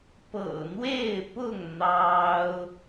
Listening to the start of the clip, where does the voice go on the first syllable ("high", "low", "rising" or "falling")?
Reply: low